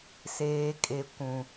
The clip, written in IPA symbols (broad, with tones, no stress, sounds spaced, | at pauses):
s eː˨ kʼ e˨ kʷ ũ˨